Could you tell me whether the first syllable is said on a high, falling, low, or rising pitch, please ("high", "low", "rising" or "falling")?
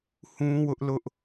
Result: high